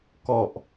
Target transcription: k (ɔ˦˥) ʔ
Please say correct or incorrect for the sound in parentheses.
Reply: incorrect